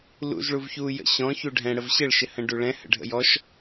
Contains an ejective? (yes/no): no